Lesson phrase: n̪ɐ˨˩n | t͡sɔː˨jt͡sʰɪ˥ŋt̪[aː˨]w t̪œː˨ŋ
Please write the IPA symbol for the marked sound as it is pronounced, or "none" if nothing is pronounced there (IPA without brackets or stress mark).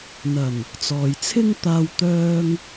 aː˧